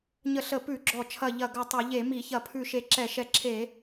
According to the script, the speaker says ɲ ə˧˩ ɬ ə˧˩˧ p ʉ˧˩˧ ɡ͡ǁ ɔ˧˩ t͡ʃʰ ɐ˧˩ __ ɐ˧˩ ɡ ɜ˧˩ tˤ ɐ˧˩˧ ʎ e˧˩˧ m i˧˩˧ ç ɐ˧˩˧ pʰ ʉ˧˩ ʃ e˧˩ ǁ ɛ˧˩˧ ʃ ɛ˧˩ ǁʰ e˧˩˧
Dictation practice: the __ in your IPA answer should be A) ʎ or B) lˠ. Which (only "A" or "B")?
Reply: A